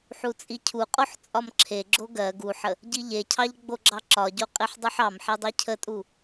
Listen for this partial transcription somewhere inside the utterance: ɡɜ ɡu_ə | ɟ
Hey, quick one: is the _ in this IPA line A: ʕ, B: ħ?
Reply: B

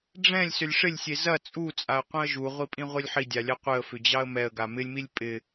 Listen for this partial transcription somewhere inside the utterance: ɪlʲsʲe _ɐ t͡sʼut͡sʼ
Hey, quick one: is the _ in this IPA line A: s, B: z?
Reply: B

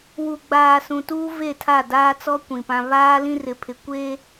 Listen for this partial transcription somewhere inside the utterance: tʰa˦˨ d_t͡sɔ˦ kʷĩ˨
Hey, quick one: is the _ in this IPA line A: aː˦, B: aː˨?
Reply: A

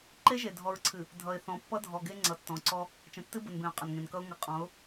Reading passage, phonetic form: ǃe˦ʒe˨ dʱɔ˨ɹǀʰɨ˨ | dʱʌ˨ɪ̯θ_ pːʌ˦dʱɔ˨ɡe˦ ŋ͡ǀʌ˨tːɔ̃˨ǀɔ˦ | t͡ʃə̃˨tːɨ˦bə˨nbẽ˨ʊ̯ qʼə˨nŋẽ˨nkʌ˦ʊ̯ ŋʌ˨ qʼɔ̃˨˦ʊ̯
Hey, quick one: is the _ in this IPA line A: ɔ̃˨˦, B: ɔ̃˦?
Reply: A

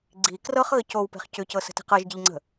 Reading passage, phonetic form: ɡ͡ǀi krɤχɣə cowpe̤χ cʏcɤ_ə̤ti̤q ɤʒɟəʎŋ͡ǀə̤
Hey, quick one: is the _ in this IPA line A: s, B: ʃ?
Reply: A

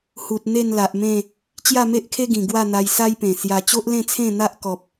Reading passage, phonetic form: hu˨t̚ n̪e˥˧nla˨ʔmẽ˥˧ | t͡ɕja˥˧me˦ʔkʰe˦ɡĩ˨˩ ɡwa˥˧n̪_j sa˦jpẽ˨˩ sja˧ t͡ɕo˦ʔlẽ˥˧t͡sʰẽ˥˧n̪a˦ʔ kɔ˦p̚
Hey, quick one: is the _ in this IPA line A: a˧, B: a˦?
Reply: A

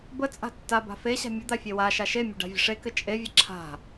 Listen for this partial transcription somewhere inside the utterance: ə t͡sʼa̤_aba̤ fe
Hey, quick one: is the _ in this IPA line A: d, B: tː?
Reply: B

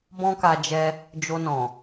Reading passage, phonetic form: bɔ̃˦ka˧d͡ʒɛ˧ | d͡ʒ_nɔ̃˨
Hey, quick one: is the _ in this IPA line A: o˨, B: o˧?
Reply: B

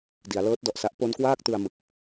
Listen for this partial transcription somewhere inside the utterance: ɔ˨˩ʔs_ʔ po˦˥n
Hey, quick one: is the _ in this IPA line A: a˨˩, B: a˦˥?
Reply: B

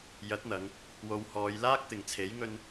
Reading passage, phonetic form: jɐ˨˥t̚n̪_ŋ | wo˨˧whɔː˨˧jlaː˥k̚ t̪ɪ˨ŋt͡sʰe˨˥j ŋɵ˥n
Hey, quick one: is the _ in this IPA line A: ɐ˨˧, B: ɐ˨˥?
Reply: A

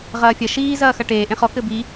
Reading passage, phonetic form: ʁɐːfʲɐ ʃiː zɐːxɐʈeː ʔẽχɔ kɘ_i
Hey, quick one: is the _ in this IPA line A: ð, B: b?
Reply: B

